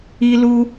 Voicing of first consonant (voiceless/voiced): voiced